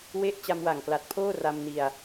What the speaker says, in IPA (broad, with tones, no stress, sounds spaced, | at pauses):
w e˥˩ ʔ t͡ɕ a˧ m w a˨˩ ŋ k l a˨˩ t̚ pʰ oː˥˩ r a˧ m n i˧ a̯